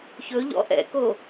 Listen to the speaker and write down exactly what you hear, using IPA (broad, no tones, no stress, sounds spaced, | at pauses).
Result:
ç ɵ ʎ ɔ̰ ʔ ɛ̰ k o